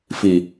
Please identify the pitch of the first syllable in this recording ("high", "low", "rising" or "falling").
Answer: low